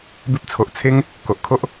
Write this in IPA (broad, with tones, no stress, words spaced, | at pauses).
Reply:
bi˦p̚ t͡sʰo˨ʔt͡sʰe˦ŋ | ko˨ʔkʰo˦ʔ